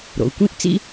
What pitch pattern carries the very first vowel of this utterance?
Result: low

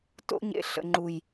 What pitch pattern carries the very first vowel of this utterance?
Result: high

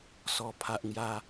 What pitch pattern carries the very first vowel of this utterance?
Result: falling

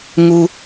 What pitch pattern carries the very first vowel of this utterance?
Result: low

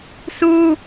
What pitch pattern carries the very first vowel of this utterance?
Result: high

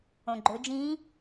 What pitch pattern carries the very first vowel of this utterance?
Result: low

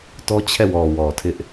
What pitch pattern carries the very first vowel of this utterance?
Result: high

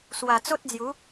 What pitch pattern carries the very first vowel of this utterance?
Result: low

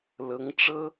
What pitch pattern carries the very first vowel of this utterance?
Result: rising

